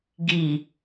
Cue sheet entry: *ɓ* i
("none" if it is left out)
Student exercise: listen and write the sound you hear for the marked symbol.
ɡ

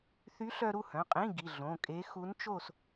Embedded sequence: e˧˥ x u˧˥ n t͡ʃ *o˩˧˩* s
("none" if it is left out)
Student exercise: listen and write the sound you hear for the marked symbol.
o˥˨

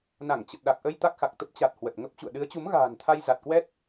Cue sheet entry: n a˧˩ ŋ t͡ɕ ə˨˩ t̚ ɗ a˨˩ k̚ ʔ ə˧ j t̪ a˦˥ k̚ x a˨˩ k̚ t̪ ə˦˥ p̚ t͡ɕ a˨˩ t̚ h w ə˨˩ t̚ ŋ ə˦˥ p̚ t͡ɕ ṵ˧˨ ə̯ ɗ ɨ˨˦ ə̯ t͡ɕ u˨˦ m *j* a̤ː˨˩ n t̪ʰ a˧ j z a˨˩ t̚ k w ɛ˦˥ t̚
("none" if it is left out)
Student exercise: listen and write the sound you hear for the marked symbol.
ɣ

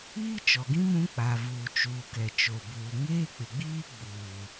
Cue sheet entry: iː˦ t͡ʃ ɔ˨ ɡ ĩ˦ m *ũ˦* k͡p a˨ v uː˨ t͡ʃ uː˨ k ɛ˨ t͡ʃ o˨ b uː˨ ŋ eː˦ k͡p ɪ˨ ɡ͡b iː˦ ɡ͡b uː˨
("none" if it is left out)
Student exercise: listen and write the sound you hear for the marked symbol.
ũ˦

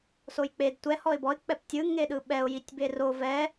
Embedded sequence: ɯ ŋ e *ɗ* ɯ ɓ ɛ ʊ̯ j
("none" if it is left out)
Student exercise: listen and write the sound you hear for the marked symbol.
ɗ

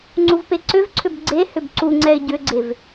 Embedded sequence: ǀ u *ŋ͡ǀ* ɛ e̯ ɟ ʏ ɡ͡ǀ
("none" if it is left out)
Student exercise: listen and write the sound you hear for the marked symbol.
ŋ͡ǀ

